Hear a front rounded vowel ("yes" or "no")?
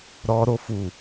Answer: no